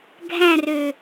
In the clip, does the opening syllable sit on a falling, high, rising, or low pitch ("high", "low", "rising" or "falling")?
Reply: falling